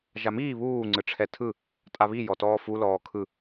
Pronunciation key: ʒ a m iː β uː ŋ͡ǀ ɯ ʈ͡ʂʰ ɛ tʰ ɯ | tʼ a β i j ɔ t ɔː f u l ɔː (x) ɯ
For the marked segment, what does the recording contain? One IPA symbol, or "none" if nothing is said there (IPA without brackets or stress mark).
kʰ